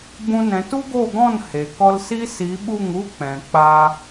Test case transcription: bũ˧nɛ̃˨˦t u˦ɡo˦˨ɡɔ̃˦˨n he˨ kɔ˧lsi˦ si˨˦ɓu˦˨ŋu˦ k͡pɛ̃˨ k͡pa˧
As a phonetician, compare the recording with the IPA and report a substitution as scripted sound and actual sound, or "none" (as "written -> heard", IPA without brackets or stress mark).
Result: none